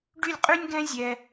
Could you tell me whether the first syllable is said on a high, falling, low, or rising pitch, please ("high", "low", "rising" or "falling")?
falling